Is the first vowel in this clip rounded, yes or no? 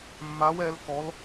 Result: no